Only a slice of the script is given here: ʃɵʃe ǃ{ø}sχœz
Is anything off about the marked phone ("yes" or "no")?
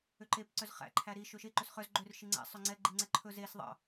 yes